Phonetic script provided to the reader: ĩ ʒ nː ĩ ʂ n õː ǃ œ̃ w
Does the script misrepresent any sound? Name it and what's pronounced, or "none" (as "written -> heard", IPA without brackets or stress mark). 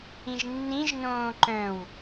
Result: ʂ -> ʒ